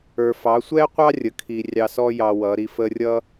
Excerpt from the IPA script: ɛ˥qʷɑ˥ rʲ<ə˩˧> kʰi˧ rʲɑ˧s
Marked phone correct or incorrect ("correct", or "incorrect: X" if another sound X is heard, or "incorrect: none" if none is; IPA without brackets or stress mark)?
correct